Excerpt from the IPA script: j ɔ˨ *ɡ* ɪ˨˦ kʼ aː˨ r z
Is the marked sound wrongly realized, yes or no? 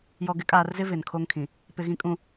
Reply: no